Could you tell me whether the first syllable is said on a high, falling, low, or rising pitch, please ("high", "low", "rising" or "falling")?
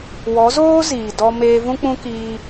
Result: rising